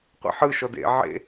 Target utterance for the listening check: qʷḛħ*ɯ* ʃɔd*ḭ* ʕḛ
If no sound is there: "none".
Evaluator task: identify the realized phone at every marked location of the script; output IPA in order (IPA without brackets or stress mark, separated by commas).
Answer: ɯ, ḛ